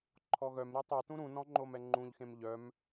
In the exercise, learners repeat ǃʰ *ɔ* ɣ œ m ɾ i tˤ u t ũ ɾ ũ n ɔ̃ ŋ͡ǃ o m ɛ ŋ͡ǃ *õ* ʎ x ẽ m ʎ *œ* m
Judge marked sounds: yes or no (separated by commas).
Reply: yes, no, yes